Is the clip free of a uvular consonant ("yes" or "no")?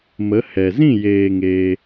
yes